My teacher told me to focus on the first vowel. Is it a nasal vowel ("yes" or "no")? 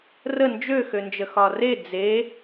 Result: no